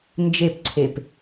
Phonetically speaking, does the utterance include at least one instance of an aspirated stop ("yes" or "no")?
yes